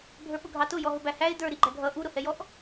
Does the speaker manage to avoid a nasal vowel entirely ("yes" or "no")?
yes